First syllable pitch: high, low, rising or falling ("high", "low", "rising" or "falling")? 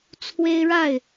high